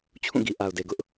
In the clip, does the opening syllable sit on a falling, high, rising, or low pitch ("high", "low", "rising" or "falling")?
falling